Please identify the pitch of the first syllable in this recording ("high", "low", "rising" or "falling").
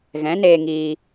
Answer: rising